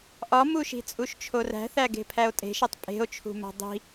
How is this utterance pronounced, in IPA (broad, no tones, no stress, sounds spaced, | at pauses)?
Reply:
ʔ ɒ m u ʃ i̤ t͡sʼ u ʃ t͡ʃʰ o r æ̤ θ æ ɡ e̤ pʰ æ o̯ tʼ e̤ ʃ e tˤ pʼ e̤ o̯ t͡ʃʰ ṳ m æ̤ dˤ i̤